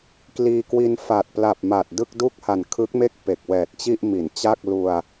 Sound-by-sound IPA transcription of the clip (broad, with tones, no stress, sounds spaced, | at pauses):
k l iː˧ k w i˧ n f a˨˩ t̚ p l a˨˩ p̚ m a˨˩ t̚ d ɯ˥˩ k̚ d u˥˩ k̚ h a˨˩ n kʰ ɯ˦˥ k̚ m e˥˩ k̚ p e˨˩ k̚ w ɛː˨˩ t̚ t͡ɕ i˥˩ ʔ m i˩˦ n t͡ɕ a˥˩ k̚ l u˧ a̯